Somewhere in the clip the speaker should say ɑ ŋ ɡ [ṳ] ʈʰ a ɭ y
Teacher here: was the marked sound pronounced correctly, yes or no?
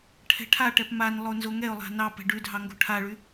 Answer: no